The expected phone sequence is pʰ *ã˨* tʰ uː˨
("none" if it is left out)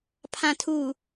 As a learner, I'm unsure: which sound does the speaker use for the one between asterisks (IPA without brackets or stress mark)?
ã˨